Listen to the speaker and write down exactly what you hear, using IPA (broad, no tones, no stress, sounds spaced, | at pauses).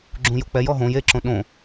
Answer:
ɡ͡ǁ ũ j o k͡p ɛ j ɔ ɦ õ j e ǁ õ ɗ õ